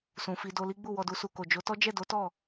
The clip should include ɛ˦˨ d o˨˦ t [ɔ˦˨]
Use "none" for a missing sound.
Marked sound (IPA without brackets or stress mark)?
ɔ˦˨